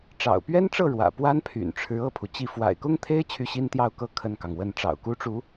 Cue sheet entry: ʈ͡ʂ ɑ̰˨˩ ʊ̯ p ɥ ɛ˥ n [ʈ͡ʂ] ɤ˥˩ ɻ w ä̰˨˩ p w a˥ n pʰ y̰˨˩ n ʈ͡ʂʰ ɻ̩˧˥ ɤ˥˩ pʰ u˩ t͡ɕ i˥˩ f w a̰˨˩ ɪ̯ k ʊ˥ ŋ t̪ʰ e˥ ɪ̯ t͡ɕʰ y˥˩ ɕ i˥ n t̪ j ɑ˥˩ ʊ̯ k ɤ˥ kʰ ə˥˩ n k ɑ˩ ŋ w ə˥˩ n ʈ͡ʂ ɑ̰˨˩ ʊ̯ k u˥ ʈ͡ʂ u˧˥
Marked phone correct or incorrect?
correct